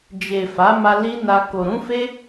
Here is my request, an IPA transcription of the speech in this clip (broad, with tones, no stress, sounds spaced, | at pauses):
d͡ʒ e˨ f a˨˦ m a˧ l i˦ n a˧ k o˨ ɾ ũ˨˦ f e˦